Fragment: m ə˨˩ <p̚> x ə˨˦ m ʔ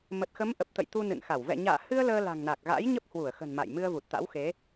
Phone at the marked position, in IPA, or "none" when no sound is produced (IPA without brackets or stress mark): t̚